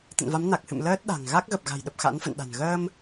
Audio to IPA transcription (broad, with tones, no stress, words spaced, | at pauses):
t̪ə̰˧˨nva˨˦mna˨˩k̚hɨ̰˧˨m ləː˦˥t̚ɗa̤˨˩ŋ ɣa˦˥k̚ ɣə˨˩p̚ɣa̤˨˩jɗə˨˩p̚ xa̰˧˥nfə̰˧˨nɗa̤˨˩n ɣəː˧m